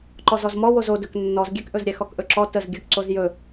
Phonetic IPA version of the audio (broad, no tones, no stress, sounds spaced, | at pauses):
ǃ ɔ z ɔ z m ɔ w o z o d ɵ k nː ɔ z ɡʲ ɛ k ʔ ɵ z ɾʲ ɛ x ɔ k ʔ ɵ ǁ ɔ t ə z ɡʲ ɵ k ǀ o z j ɵ